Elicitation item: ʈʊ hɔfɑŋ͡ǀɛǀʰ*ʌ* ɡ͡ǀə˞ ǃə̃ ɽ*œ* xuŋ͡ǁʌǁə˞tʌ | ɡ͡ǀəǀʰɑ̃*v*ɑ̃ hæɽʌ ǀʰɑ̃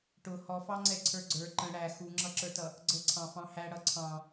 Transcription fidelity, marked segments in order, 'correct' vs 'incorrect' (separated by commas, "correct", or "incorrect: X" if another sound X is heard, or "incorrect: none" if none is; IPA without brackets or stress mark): incorrect: ə˞, incorrect: æ, incorrect: f